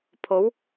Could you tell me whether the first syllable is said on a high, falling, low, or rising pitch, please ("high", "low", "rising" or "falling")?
rising